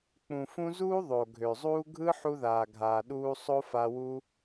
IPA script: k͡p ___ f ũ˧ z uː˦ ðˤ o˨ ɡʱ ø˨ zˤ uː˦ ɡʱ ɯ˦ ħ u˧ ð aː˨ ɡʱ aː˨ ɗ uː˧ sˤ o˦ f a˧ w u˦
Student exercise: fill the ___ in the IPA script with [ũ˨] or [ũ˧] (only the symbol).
ũ˨